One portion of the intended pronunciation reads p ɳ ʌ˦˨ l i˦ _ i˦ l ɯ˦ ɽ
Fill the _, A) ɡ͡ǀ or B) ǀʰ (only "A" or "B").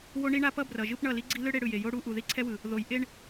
A